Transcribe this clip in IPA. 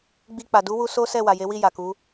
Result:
ɡ͡b i˧ k͡p a˨ d u˨˦ w u˧ s o˦ s ɛ˦˨ w a˨ j e˨˦ w i˦˨ j a˨ k u˨˦

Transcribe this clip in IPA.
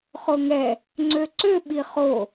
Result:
χ o ŋ ɛ | ŋ͡ǀ ø ǀ ø ɓ i χ o

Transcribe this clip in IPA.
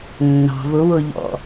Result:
nː ɑ̤ v ʊ w ʊ ʎ ɔ̰

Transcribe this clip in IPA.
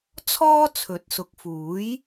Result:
t͡sʰ ɔː˥ t͡sʰ ɵ˨˥ t̚ s ʊ˨˥ k̚ f uː˨˥ j

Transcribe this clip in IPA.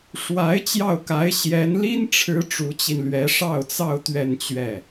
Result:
ʂ w a˧˥ ɪ̯ t͡ɕ j ɑ˥˩ ʊ̯ k a˧˥ ɪ̯ ɕ j ɛ˧˥ n l i˥ n ʈ͡ʂʰ ɻ̩˧˥ ʈ͡ʂ u˧˥ t͡ɕ i˧ n l ɥ ɛ˧˥ ʂ ɑ˥˧ ʊ̯ t͡s ɑ˥˧ ʊ̯ t̪ ɥ ɛ˥˧ n t͡ɕ ɥ ɛ˥˩

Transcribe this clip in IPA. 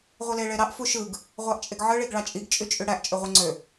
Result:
ʁʷ i l e ɭ e ɾ ɑ ʔ f u ʃ ɯ ɡ | ʁʷ ɑ ʔ t͡ʃʼ e ɡ ʕ ɯ ɭ i ɡ ɭ ɑ t͡ʃʼ i ɡ t͡ʃʼ y t͡ʃʼ y ɽ æ ʔ t͡ʃʼ ø ʁʷ i ŋ͡ǀ ø

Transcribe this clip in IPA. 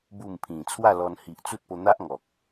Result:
b u˥˧ m pʰ ĩ˨˩ t͡sʰ w a˥˧ l ɔ˧ n h i˨ ʔ t͡s u˦ t̚ p o˧ n̪ a˦ ʔ ŋ ɔ˨ k̚

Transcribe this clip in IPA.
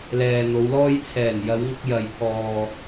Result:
l ɛː˨ n̪ o˨˧ w l ɔː˧ j t͡sʰ ɛː˨˩ n j ɐ˨˧ w ŋ ʊ˧ k̚ j ɐ˨ j pʰ ɔː˨

